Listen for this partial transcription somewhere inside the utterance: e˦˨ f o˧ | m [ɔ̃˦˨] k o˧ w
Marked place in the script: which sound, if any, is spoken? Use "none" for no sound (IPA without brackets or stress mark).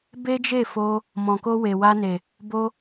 ɔ̃˨